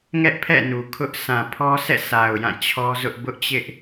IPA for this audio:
ŋ ɛ˦ ʔ pʰ ɛ̰˦˨ n u˨ kʰ ʊ˦ ʔ s ã˨ pʰ ɔ˦ s ɛ̰˦˨ s a˨ ʊ̯ j ã˦˨ t͡ɕʰ ɔ˦ z ʊ˦ ʔ b ʊ˦ ʔ t͡ɕ ɪ˦ ʔ

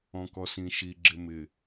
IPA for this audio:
ɔ̃ k ɔ s ĩ ʃ i ɡ͡ǁ ɪ m ɪ

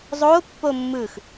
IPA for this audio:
zˤ o pː o mː ɯ x

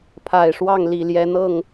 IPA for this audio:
pʰ a˨˩ ɪ̯ ʂ w ɑ˥˩ ŋ l i˨˩ l j ɛ˧˥ n̪ ɤ˥˩ ŋ

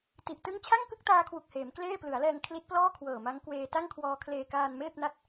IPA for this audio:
t i˨˩ ʔ t ɯ˥˩ ŋ t͡ɕʰ a˥˩ ŋ k ɯ˥˩ k̚ t aː˧ kʰ w u˨˩ k̚ h eː˩˦ m k l eː˥˩ p l ɯ˩˦ a̯ l ɛː˧ ŋ kʰ l i˦˥ t̚ p l ɔː˥˩ kʰ w ɤː˨˩ m a˦˥ ŋ k w eː˧ t a˥˩ ŋ kʰ w ɔː˧ kʰ l eː˧ k aː˧ n m eː˥˩ p̚ n a˥˩ t̚

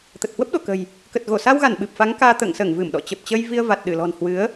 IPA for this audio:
t̪ ə˨˩ t̚ h w ə˦˥ p̚ ɗ o˧˩ k ə̤˨˩ j | k ə˨˩ t̚ ɣ o˧˩ s a˧ w ɣ a˧˩ n ɓ ɨ˨˩ p̚ f a˨˦ ŋ k aː˧ t̪ ə̰ː˧˨ ŋ s əː˧˩ ŋ v ɨ˧˩ m ɗ ɔ̰˧˨ t͡ɕ ə˨˩ p̚ t͡ɕ əː˧ j v i˧ ə̯ v a˨˩ t̚ ɗ ɨ˧˩ l ɔ̤˨˩ n h w ɨ˨˦ ə̯

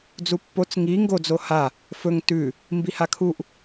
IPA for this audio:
d͡z u pː o t͡s ŋ i ŋ ɡ o d͡z o h a | f ɵ ŋ t ʉ | m b i h a kʰ u ʔ

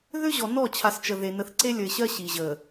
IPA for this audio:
ð ʏ˦ ʑ ɔ˨ n ɔ˦˨ t͡ɕʰ a˨ s t͡ʃ ə˨ ð e˨ n ə˨ θ ǀ e˦ lʲ ə˨ ɪ̯ ɕ ɜ˦ ɕ i˨ ʑ ə˨

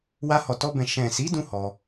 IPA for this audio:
w a˧ h ɔ˨ t ɔ˧ b ɛ̃˨ ʃ ɛ̃˨ s i˨˦ d ũ˦ h ɔ˧

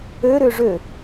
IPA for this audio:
ø ɾ ʏː ʐ ø

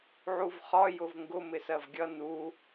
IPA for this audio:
ʕ u v χ ɒ j ʊ v ŋ ɡ ʊ m ɪ s ɜ v ɡʲ ʌ n u

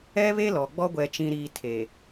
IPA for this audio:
ɛ˦ β e˦ l ɔ˨ ɡ͡b ɔ˦ ɡʷ ɛ˨ t͡ʃ ĩ˨ ɾ iː˨ tʰ e˨

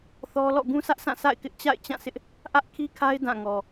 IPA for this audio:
θ ɔ˦ l ɔ̰˦˨ ɡ ũ˦ sʰ ä˦ ʔ sʰ ã˦˨ sʰ a̰˦˨ ɪ̯ k ɪ˦ ʔ t͡ɕ a̰˦˨ ɪ̯ t͡ɕ ã˦˨ s ɪ˦ ʔ | ʔ ä˦ ʔ kʰ i˦ kʰ a˦ ɪ̯ d ã˦˨ ŋ ɔ˨

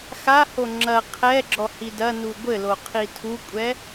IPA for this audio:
x a h o ŋ͡ǁ ɐ qʰ ɛ ɡ͡ǁ ɔ h i d ɐ n u ɡʷ ɘ l o qʰ i tʰ u kʷʼ ɛ

